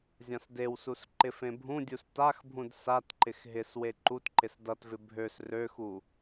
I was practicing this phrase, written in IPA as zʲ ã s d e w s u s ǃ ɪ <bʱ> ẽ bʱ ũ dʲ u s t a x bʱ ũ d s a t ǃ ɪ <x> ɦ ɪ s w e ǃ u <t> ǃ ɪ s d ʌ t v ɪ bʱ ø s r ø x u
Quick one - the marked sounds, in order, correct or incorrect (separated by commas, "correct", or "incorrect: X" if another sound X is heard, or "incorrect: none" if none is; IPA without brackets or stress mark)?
incorrect: f, correct, correct